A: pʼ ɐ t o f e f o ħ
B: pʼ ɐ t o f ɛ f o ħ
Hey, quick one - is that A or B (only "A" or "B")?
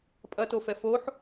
B